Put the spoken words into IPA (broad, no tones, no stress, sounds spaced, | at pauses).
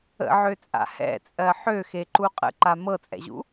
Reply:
ə̰ ʕ ø t͡sʼ a̰ h ɛ̰ t͡sʼ ɜ ħ ø x e ǃ u qʼ ə̰ ǃ a m ɤ t͡sʼ ɛ̰ ʑ ṵ